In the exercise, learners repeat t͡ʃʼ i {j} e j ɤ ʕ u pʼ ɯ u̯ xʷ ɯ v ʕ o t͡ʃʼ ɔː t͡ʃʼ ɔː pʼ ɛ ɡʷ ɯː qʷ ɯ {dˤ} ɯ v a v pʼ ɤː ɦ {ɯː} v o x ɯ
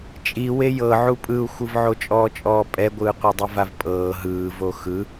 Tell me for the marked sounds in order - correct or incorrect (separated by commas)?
incorrect, correct, correct